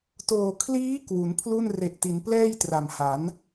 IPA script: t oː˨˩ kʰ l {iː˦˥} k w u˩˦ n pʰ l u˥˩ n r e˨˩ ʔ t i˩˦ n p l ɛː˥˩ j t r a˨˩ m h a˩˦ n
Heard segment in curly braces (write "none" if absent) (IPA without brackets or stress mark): iː˦˥